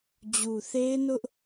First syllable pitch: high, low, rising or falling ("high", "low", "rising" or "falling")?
low